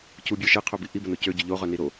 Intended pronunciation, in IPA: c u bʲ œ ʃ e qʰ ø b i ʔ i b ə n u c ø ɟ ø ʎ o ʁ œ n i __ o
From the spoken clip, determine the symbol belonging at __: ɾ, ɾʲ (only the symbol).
ɾ